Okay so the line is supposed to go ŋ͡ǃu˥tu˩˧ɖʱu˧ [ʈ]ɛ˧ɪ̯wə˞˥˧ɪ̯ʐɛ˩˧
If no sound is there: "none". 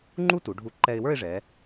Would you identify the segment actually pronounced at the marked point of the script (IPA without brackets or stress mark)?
ǃ